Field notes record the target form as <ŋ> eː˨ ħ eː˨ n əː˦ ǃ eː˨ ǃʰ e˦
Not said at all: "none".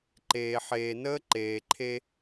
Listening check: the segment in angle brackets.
ǃ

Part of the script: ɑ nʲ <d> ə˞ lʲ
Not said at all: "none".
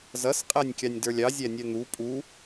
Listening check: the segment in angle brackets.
d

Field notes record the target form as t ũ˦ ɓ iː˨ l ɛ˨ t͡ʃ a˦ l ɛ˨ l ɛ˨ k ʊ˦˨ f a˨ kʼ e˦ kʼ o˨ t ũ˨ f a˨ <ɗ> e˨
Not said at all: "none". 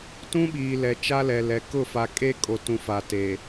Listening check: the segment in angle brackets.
t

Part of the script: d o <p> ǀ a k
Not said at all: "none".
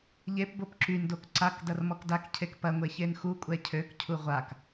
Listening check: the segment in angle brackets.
k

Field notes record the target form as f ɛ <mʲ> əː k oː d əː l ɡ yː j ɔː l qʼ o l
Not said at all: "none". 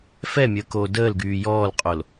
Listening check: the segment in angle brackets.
mʲ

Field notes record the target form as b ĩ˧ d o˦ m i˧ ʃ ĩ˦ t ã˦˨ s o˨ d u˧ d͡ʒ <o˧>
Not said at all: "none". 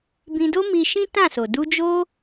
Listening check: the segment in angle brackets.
o˦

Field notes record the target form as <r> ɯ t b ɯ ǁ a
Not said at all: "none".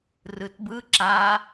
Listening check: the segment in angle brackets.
r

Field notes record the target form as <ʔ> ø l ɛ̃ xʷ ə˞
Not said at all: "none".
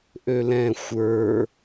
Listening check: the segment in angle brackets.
ʔ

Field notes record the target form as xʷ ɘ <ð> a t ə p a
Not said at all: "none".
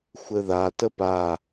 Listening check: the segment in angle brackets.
ð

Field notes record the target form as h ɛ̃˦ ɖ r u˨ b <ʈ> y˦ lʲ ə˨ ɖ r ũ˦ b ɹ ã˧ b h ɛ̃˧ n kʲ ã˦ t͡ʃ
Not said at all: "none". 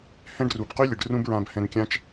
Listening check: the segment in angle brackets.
q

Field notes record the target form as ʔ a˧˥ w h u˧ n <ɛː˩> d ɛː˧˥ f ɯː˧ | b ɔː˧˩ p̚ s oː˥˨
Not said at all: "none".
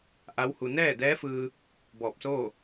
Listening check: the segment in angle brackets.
ɛː˥˨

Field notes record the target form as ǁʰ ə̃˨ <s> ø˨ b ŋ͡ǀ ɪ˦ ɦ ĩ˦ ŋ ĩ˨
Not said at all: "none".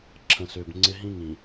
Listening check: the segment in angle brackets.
s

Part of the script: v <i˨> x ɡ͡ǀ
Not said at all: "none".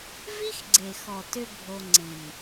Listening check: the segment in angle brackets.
i˦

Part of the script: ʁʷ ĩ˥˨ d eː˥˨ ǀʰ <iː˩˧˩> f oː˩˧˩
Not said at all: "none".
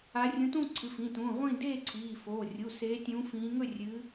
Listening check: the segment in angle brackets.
iː˩˧˩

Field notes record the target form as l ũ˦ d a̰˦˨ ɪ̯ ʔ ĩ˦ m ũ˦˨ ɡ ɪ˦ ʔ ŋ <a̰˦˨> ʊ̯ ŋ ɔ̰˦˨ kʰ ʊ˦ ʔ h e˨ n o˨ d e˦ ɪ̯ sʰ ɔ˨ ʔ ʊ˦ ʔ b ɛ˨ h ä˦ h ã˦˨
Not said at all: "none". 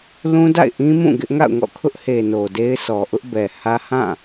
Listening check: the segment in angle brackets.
a̰˦˨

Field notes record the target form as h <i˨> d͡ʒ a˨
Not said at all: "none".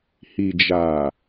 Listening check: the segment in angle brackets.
i˨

